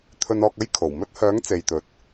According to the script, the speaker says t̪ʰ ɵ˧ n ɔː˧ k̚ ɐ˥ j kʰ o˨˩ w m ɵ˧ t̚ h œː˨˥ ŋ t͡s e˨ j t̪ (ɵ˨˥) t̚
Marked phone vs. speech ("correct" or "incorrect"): incorrect